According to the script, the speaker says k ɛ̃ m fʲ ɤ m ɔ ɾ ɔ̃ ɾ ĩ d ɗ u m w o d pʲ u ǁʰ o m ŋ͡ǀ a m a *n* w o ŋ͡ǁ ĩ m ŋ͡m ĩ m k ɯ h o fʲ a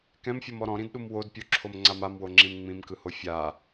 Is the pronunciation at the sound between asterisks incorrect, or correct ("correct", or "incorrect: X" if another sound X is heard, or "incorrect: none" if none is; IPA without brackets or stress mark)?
incorrect: m